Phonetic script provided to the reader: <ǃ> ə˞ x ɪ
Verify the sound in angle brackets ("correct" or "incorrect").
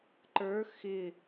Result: correct